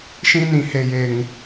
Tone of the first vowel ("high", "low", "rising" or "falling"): high